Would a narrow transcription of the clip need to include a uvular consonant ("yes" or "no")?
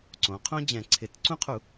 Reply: yes